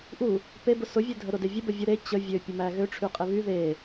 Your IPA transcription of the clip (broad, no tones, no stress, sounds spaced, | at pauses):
ʔ u | p e b ʊ s ʊ vʲ ø dʱ ə ɾ ʊ d e vʲ ə b ə vʲ ʊ ɾ e t͡ɕ ə vʲ ø pʲ ə m æ ɣ ø ʈ͡ʂʰ y qʼ e β y ð e